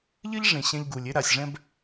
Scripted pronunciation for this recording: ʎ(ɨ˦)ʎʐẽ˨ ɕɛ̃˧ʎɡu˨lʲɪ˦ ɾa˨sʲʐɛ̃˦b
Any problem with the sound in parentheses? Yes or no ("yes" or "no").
no